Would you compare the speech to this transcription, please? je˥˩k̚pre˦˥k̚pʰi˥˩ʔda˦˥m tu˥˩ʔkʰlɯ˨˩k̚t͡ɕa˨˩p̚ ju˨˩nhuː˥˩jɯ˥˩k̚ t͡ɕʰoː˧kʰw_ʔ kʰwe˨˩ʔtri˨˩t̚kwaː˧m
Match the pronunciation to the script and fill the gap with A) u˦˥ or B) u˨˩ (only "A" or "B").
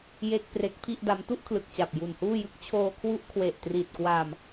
A